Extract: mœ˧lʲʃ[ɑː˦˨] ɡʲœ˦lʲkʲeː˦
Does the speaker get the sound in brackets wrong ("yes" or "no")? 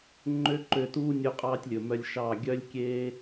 no